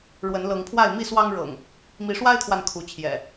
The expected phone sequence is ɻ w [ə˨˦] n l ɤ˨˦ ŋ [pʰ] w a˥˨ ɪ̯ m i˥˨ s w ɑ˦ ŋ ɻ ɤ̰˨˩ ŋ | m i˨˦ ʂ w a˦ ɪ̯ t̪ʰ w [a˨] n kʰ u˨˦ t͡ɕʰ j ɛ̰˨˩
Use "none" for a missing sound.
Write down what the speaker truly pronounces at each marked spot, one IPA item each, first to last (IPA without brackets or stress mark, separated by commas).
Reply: ə˨˦, pʰ, a˨